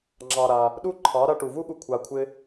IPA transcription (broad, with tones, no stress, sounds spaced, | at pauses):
ŋ͡ǁ ɑ˧ ɾ a˧ | ɗ u˦ ǃʰ ɑ˨˦ ɾ a˧ ʈ u˨ v u˦ ɠ u˧ kʷʰ a˧ kʷʰ ɪ˦